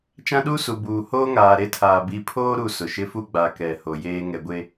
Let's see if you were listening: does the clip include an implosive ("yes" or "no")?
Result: yes